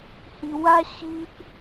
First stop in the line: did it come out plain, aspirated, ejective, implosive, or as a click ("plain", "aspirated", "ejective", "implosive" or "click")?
plain